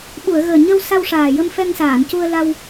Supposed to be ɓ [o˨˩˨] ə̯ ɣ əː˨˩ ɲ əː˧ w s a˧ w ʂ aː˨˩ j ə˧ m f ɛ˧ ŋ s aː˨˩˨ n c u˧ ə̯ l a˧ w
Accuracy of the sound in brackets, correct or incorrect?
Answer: incorrect